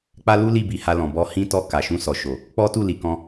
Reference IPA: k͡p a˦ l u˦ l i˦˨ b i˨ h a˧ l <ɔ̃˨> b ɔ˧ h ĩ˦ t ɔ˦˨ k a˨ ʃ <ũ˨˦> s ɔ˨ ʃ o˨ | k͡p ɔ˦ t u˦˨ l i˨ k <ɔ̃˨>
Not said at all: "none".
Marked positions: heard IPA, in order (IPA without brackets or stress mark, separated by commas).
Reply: ɔ̃˨, ũ˧, ɔ̃˧